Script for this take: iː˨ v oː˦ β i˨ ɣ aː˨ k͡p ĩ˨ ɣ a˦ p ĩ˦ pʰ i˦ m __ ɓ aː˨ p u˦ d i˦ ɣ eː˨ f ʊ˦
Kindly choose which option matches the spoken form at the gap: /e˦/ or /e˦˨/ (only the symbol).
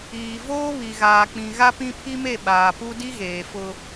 e˦˨